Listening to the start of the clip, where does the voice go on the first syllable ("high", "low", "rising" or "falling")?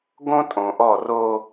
high